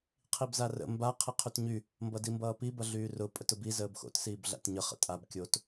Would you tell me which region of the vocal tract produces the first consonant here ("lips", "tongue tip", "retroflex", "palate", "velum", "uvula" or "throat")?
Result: uvula